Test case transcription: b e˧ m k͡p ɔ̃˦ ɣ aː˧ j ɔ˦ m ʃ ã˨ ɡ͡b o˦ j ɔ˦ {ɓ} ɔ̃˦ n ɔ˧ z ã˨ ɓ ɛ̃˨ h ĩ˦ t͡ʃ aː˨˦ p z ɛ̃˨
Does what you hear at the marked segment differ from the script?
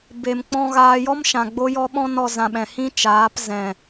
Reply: no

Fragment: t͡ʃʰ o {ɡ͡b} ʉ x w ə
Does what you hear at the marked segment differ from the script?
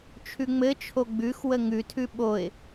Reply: no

